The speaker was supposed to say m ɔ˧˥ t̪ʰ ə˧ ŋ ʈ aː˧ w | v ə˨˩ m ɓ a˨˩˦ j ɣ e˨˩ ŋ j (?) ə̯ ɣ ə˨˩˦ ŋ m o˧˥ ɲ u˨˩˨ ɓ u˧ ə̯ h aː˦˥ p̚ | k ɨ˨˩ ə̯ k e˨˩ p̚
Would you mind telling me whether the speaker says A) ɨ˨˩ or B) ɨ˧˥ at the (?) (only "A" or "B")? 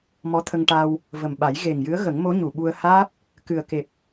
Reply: B